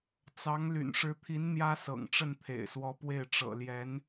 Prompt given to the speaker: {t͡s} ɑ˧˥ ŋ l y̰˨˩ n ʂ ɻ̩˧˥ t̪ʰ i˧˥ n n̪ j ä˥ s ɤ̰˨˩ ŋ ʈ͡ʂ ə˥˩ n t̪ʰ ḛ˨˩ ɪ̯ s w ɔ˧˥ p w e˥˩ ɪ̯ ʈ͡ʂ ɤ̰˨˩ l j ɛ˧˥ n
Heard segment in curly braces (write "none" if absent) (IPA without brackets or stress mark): t͡s